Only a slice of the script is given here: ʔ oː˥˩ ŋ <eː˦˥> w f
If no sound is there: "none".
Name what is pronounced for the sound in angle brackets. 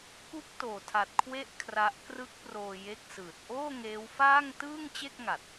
eː˦˥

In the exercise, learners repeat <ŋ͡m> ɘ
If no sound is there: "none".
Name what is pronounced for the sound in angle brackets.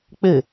k͡p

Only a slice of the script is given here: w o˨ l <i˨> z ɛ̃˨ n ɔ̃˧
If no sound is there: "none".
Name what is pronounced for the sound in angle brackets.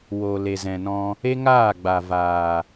e˨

